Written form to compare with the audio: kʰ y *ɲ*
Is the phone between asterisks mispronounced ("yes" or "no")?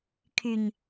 no